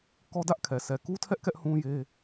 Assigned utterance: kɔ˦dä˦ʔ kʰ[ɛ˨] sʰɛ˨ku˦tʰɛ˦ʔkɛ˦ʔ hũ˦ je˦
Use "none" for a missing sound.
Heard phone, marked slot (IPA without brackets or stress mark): ɛ˨